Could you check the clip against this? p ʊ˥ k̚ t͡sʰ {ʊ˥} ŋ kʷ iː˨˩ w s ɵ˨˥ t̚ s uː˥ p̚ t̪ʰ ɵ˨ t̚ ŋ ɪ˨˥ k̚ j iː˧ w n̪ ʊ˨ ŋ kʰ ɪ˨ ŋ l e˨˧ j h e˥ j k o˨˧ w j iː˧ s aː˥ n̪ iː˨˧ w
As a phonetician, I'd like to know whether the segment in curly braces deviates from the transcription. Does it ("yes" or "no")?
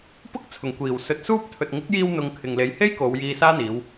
yes